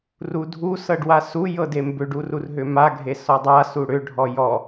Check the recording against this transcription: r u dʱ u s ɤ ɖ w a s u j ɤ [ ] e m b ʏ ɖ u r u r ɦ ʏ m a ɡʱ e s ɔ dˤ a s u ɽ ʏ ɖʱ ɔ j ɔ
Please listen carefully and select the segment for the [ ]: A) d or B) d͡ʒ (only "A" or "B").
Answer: A